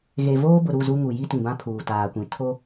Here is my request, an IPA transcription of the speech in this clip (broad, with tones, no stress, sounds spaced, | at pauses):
ɣ e˨ v oː˦ b ʊ˨ ɾ u˦˨ z u˦ ŋ u˨ j i˦ t ĩ˨ b ã˦ pʰ uː˨ t aː˨ kʷ ĩ˨ tʰ o˦